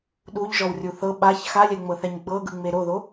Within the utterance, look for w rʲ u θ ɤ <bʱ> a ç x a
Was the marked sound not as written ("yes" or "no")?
yes